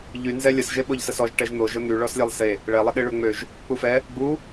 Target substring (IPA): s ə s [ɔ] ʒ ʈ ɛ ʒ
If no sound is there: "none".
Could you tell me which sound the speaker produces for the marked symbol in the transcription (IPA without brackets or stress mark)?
ɔ